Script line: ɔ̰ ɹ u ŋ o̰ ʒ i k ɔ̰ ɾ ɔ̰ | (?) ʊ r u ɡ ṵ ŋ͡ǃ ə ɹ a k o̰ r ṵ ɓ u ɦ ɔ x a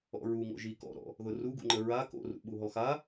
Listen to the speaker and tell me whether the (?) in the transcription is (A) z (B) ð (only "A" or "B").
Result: B